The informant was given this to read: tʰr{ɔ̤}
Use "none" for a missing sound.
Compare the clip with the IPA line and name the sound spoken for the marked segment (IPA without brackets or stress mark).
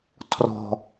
ɔ̤